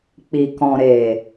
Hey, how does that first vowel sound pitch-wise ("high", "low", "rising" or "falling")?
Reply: low